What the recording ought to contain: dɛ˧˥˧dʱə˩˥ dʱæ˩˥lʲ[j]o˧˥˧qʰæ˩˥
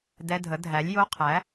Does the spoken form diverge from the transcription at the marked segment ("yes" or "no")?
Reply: no